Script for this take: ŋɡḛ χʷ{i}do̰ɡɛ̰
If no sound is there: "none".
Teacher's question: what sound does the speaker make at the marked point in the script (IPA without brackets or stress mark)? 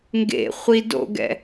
i